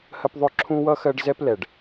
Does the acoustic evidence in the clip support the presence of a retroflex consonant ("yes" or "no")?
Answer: yes